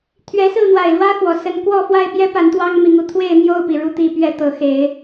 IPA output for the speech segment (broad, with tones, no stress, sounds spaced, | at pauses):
t̪ʰ ɥ ɛ˨˦ s ɹ̩˥˨ n̪ w a˨˩ ɪ̯ l w ä˦ x w ɔ˨˩ s ə˦ n k w ɔ˥˨ f w a˥˨ ɪ̯ p j ɛ˦ p a˨˦ n t̪ w ɑ˦ ŋ m i˨˦ ŋ u˧ t̪ʰ w e˥˨ ɪ̯ n̪ j o˥˨ ʊ̯ p i˩ ɻ u˥˨ t̪ i˥˨ p ɥ ɛ˥˨ t̪ ɤ˨˦ x e˨˦ ɪ̯